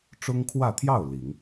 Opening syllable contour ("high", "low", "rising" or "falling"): high